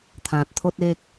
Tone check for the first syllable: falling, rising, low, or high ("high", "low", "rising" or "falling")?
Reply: low